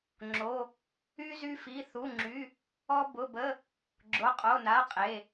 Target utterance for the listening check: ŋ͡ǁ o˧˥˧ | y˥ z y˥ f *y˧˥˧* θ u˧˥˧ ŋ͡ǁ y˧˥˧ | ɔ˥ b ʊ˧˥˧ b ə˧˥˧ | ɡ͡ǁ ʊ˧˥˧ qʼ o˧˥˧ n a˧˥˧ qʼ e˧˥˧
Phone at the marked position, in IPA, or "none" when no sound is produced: i˧˥˧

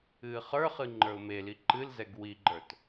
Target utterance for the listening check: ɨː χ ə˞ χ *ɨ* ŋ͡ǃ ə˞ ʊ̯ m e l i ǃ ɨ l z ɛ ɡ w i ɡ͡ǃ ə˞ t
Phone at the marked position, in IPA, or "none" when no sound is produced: ɨ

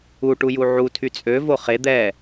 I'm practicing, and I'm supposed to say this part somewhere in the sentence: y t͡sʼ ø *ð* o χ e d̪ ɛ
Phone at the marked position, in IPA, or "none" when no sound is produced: v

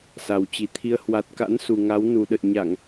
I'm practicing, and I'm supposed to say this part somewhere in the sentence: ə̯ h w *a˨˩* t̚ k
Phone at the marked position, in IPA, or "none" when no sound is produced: a˨˩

